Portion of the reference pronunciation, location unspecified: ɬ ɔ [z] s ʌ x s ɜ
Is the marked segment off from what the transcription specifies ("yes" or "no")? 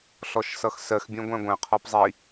yes